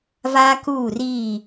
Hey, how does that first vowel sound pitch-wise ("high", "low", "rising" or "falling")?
high